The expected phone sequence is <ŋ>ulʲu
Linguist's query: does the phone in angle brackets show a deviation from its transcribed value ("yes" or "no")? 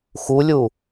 yes